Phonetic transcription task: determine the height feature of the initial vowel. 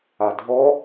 low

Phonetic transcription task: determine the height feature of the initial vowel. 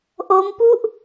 mid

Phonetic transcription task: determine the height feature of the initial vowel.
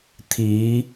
high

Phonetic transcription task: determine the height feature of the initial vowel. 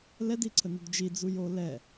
mid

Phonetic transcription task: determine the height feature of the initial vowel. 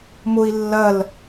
high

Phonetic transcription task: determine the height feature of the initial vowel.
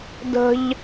mid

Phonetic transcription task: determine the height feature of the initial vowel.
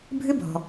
high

